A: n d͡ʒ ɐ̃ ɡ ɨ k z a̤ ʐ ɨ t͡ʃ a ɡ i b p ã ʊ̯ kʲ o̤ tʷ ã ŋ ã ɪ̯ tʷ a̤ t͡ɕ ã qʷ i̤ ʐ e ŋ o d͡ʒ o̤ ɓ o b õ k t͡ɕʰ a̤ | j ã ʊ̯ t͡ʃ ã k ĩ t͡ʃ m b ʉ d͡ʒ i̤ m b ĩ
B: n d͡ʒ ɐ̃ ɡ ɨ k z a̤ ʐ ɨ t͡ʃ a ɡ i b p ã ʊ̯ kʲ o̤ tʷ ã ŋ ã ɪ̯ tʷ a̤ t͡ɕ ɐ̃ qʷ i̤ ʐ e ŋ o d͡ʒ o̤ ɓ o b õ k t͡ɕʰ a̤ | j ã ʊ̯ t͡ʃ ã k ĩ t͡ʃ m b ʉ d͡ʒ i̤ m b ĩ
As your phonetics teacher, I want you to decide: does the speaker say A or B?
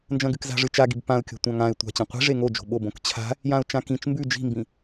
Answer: B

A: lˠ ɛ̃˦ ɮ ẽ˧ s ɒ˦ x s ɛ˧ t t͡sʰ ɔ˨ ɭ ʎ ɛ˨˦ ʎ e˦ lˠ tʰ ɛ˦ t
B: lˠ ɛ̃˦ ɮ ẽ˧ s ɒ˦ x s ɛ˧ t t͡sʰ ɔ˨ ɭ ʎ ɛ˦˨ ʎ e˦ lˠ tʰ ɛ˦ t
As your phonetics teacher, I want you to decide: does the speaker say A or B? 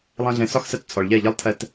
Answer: B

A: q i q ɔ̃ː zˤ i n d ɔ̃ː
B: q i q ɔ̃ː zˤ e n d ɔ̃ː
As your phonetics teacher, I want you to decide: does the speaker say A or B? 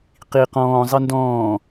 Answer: A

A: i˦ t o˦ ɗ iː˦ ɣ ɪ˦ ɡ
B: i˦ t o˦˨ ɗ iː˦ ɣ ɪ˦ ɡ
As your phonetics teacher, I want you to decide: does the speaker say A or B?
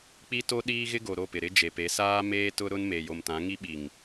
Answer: A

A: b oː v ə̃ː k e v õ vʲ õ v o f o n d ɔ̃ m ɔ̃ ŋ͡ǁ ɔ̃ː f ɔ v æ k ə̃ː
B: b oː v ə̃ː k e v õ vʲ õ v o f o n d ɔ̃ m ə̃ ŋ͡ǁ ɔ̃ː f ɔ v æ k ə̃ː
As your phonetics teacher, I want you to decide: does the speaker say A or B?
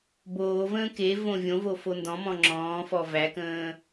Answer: A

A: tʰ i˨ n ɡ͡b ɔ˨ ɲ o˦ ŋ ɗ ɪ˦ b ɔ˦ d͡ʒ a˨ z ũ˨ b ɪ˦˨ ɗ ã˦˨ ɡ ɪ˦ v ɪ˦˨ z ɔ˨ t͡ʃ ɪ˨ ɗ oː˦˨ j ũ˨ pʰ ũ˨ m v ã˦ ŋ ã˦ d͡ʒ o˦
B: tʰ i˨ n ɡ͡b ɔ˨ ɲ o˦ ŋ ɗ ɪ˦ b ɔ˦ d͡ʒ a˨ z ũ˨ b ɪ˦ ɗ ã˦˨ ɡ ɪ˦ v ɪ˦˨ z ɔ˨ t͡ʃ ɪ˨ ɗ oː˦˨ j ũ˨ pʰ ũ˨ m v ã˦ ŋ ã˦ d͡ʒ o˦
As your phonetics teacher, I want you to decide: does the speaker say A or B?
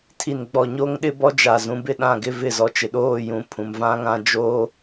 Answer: A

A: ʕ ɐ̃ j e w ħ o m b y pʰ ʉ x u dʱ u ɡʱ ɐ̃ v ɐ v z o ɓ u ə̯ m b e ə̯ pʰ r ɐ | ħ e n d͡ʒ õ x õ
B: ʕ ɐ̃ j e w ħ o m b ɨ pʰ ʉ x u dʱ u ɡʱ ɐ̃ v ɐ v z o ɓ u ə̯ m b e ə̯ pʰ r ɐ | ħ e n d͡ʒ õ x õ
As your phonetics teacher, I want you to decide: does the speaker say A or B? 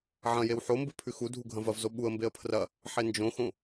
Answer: B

